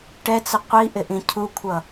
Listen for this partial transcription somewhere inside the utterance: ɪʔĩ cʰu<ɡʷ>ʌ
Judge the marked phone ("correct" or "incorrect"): incorrect